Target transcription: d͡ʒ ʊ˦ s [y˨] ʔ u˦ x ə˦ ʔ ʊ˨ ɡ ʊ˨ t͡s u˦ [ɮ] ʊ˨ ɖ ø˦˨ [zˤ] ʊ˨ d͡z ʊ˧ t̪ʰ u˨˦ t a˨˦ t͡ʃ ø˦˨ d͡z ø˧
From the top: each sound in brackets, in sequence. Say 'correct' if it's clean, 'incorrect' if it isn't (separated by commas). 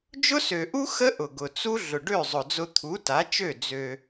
incorrect, correct, correct